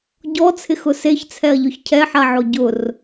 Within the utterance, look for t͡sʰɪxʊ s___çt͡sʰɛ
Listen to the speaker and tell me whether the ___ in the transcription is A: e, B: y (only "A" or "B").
A